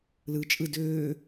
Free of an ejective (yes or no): no